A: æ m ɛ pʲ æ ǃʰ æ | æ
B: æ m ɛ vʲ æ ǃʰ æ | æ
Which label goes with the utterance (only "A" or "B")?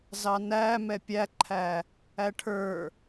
A